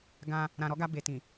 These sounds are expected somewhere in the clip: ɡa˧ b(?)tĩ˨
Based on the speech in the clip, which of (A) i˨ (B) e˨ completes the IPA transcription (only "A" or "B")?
B